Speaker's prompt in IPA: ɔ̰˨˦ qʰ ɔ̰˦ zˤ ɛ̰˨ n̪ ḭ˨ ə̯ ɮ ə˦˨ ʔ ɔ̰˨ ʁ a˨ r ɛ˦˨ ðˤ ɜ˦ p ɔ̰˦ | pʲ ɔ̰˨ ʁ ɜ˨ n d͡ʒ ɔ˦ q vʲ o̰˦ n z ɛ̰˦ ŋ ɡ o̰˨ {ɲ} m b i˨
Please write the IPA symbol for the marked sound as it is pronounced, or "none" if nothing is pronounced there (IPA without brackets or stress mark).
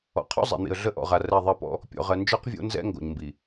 ɲ